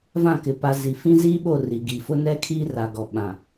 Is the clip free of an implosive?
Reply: no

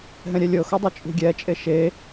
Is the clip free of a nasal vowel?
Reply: no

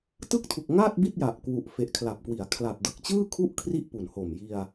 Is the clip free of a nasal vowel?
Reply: yes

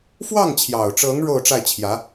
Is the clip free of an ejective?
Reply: yes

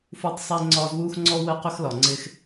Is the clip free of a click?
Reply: no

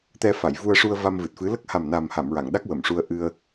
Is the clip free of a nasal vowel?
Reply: yes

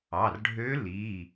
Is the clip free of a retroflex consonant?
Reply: no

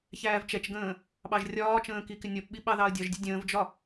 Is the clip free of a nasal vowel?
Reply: no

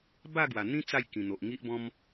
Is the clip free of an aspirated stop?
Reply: yes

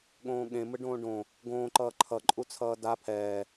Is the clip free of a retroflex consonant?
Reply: no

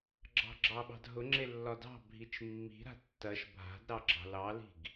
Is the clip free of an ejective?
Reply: yes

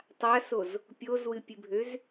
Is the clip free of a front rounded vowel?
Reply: no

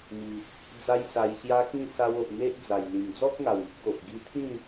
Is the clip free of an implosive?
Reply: yes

